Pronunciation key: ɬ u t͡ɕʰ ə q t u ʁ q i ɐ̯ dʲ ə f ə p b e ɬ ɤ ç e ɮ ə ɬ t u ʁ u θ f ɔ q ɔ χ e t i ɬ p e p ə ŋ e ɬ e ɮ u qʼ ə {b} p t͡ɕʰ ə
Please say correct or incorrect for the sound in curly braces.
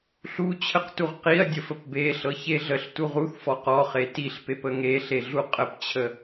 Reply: incorrect